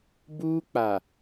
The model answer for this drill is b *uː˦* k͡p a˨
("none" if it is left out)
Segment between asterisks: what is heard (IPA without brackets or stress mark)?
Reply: uː˦